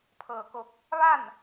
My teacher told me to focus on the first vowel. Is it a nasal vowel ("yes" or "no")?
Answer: no